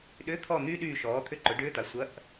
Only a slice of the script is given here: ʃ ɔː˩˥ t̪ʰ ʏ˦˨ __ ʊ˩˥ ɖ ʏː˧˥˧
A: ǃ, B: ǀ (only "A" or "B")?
A